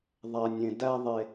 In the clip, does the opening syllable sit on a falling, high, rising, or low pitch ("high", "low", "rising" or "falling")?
low